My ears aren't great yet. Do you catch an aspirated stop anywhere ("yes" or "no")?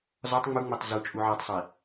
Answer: no